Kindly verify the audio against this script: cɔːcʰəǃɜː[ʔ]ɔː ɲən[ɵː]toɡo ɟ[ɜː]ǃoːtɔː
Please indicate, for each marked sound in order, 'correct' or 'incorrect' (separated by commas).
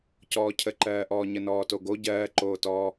correct, incorrect, correct